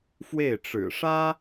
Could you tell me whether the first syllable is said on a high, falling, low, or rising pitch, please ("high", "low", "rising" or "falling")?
falling